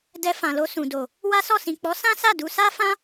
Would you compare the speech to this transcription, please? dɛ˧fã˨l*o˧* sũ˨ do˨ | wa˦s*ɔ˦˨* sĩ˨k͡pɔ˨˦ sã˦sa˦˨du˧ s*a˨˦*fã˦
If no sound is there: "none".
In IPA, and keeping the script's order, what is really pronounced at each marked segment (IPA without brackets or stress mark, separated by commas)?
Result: o˧, ɔ˦˨, a˦